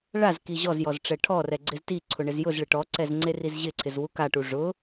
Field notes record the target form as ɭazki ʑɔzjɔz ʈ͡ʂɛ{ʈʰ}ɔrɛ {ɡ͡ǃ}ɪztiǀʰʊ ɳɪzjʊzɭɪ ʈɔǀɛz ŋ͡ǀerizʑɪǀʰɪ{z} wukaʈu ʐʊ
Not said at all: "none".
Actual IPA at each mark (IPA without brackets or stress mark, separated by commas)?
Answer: ʈʰ, ɡ͡ǀ, z